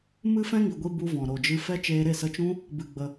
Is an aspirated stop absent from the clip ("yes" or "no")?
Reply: yes